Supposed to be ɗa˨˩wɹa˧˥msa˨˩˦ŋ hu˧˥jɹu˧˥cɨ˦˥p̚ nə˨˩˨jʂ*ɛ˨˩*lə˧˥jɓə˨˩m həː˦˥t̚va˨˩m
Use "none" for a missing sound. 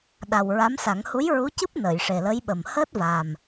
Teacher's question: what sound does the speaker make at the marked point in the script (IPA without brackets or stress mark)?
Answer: e˨˩